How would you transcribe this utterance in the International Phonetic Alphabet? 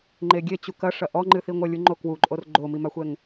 ŋ͡ǃeɡʲet͡ɕu kɐʂɐ ʔɔŋ͡ǃɨθiŋʷɐ lʲuŋ͡ǃokwuǃʼor ɡ͡ǃomimaxʷɛŋ

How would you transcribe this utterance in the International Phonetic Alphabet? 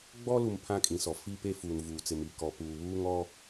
ɡ͡bɔ˦lu˨m pʰã˦kʼĩ˨sɔ˨ fi˦pe˦ fuː˨nvuː˨t͡sɪ˨mi˨ kɔ˨ puː˨βuː˦ŋ ɔ˦

